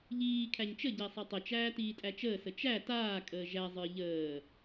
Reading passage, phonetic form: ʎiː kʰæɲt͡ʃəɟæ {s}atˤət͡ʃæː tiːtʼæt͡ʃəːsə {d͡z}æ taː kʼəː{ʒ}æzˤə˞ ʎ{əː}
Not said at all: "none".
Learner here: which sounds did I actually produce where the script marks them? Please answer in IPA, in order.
sˤ, t͡ʃ, ʒ, əː

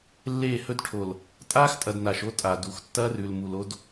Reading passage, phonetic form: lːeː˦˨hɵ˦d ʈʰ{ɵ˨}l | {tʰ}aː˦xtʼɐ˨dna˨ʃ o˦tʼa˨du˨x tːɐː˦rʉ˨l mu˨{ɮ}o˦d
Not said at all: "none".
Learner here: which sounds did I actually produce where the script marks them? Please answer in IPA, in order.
o˨, tʼ, l

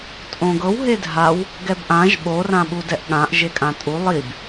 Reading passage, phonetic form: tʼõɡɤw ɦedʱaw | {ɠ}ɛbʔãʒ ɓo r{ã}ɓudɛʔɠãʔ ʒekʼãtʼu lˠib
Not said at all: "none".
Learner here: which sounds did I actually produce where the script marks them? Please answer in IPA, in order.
ɡ, ã

